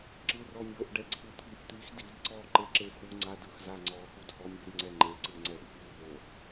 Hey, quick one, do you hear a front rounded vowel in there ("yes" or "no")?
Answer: no